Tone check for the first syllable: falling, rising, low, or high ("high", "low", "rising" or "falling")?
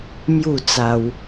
falling